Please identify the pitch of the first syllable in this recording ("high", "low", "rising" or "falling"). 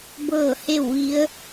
falling